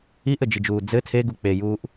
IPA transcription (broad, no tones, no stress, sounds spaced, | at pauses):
i ʔ ɘ d͡ʒ i d͡ʒ uː d͡z ɘ tʰ e ɡ u k͡p e j uː ʔ